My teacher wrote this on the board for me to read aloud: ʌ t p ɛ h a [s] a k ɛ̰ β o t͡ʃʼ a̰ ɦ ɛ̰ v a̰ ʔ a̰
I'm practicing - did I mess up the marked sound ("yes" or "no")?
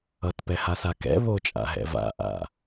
no